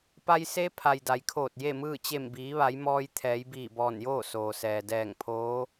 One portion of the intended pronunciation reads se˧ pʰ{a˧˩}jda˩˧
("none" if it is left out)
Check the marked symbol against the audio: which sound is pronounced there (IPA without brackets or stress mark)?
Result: a˩